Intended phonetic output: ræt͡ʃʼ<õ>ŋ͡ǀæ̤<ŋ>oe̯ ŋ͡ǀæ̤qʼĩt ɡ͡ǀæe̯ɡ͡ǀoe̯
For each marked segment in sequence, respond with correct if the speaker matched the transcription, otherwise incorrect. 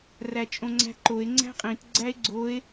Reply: correct, incorrect: ǃ

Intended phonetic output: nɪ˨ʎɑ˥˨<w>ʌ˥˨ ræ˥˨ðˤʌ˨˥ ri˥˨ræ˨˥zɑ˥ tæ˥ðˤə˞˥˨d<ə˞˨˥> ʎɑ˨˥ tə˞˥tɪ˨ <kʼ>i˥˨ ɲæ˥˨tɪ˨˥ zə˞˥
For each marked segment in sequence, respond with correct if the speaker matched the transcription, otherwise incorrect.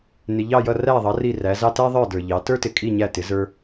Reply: incorrect: j, incorrect: ə˞˨, correct

